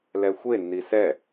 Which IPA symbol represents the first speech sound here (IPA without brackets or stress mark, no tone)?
l